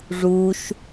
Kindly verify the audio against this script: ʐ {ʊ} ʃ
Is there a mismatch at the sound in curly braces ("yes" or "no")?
yes